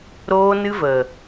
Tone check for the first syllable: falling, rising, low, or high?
high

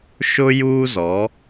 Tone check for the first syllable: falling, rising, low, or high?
high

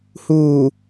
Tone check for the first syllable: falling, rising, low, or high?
low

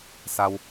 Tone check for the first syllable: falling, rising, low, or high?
low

